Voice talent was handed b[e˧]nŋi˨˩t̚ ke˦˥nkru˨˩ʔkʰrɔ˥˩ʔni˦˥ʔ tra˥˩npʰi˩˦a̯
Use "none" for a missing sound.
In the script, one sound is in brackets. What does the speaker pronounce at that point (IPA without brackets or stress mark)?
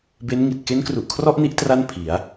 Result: e˦˥